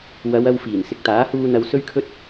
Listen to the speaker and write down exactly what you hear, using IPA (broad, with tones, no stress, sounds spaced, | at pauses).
w ɐ˨˧ w ɐ˧ w f iː˨˩ n s ɪ˨ k̚ t̪ aː˨˥ h uː˧ n̪ ɐ˧ w s ɵ˥ ɥ kʰ ɵ˥ t̚